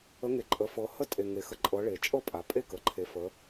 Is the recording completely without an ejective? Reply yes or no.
no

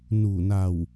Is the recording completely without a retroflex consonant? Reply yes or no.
yes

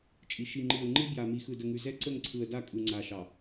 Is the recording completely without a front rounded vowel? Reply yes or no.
yes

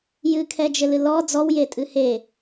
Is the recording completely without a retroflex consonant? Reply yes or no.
yes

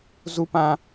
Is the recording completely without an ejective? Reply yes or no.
yes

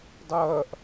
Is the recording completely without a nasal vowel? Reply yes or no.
yes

